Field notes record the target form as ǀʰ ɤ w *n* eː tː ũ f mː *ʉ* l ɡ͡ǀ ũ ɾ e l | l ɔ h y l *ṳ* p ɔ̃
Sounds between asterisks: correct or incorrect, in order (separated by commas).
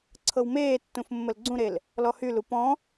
incorrect, incorrect, incorrect